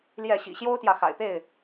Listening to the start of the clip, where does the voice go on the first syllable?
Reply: falling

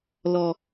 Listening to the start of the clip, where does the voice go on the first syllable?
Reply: low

